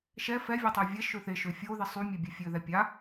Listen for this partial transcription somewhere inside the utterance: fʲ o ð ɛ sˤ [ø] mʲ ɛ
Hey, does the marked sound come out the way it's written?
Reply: no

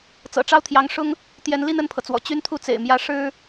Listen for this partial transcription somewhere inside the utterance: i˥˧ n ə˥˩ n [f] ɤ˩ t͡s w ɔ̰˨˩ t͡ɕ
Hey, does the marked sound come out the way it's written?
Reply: no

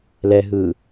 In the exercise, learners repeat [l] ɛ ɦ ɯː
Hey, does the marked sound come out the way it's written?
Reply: yes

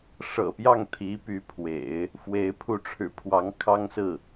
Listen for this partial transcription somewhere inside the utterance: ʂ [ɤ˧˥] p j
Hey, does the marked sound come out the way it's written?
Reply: no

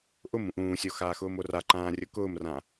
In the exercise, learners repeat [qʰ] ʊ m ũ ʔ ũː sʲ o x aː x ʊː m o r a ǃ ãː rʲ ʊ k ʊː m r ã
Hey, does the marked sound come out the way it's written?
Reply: no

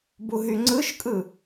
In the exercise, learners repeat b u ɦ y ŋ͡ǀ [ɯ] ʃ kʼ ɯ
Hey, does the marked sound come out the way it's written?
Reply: yes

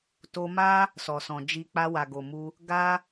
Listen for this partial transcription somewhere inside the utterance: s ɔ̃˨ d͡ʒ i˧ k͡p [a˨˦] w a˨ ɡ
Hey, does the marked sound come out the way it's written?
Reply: no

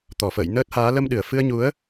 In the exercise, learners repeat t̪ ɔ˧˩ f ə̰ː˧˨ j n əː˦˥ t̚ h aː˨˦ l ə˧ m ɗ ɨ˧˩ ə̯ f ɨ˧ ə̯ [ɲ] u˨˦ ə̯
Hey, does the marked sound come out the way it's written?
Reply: yes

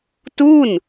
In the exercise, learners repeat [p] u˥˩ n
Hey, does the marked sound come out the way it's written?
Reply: no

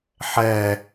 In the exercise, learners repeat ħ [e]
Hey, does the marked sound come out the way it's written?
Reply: no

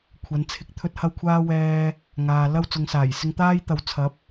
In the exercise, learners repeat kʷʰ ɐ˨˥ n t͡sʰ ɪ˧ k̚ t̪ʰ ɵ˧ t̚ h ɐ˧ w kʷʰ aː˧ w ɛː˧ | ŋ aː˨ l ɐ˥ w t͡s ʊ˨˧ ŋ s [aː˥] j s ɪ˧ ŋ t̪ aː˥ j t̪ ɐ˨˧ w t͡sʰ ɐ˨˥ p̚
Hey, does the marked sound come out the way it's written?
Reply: no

